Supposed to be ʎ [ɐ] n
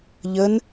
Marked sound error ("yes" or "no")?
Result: yes